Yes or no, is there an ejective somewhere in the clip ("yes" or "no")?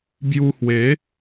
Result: no